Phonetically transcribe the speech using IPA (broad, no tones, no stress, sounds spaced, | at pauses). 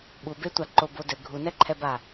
ɓ u b e tʷ a ǃ o b o d ɘ ɡʱ u n ɛ ǃʰ ɛ b a